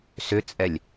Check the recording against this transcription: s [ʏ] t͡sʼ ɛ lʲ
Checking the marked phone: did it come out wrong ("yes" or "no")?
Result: no